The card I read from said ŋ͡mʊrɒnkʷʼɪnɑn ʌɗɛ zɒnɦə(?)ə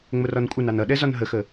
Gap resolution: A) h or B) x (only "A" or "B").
B